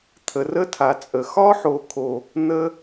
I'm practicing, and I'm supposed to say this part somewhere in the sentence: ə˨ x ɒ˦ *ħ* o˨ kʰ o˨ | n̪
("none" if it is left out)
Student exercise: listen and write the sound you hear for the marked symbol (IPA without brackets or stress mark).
ħ